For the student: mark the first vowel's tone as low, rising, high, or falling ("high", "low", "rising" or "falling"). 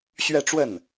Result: falling